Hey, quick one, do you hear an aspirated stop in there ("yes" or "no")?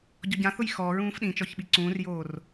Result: no